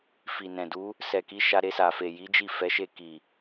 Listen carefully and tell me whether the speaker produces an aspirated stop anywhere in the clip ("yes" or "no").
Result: no